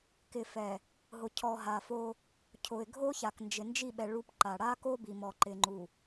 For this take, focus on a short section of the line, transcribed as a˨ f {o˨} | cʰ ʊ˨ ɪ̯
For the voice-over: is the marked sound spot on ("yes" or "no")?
no